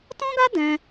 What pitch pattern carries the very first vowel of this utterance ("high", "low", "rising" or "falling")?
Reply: high